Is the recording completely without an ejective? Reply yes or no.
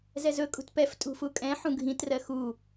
no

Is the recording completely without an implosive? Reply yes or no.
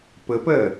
yes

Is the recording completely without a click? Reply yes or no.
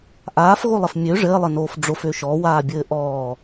yes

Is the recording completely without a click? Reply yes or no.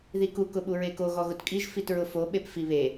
yes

